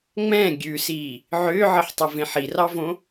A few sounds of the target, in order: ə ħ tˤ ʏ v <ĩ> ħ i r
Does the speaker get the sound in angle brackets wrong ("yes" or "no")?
yes